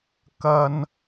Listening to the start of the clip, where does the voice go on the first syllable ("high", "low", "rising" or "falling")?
high